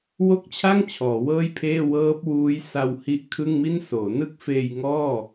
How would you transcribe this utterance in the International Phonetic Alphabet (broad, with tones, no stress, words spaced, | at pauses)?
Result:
wo˥˩k̚t͡ɕʰa˥˩ŋ t͡ɕʰɔː˩˦wɤː˥˩jpʰeː˥˩ wɤː˦˥p̚wuː˦˥j sa˧whi˦˥ʔ kʰɯ˥˩ŋmi˥˩nsoː˩˦ nɯ˥˩k̚feː˧jŋɔː˥˩